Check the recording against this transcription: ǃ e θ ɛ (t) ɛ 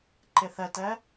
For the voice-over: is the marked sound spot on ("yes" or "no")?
yes